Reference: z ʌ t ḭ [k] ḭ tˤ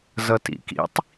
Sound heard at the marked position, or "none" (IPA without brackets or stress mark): k